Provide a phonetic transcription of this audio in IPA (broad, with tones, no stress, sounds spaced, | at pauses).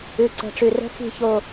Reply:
ʉ˨ ǀ ə̤˨ ʈ͡ʂ ʉ˨ r ə̤˦ x i̤˦˨ ç o˨